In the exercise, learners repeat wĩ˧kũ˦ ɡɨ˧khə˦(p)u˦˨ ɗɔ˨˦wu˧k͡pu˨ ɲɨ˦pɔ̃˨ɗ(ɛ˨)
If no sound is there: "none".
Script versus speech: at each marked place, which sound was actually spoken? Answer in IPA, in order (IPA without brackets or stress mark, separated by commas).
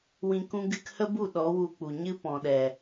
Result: b, ɛ˨